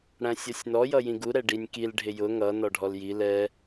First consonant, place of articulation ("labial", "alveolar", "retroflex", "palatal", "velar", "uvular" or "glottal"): retroflex